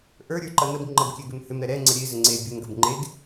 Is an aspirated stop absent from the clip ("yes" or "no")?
yes